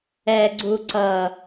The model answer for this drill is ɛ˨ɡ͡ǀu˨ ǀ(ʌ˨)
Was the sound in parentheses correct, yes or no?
yes